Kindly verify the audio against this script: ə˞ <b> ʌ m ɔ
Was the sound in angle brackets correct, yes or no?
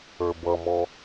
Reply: yes